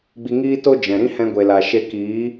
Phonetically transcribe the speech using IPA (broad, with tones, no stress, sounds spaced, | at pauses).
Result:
ɡ͡b i˧ ŋ iː˦ t o˦ d͡ʒ ɛ̃˨ ɾ ĩ˦ h ɛ̃˧ ɡʷ e˨ l a˨ ʃ e˧ k iː˨˦